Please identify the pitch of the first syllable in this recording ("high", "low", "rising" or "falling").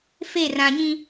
falling